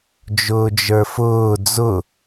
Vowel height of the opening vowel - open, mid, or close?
close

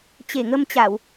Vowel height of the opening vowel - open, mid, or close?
mid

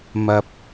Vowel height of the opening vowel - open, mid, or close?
open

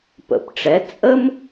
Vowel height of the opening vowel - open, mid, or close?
mid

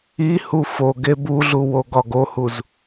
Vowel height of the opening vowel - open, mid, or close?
close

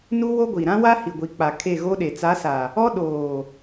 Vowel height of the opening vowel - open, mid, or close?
close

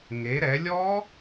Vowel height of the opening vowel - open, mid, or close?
mid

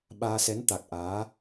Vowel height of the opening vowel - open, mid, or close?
open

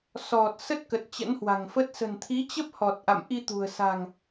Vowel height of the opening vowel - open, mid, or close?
mid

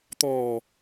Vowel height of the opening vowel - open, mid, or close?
mid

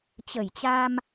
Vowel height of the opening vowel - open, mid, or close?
mid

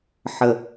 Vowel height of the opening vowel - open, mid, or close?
mid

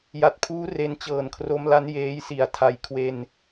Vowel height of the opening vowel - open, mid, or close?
open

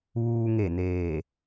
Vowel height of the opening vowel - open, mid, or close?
close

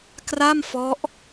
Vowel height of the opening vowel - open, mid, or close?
open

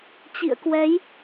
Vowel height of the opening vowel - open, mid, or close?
close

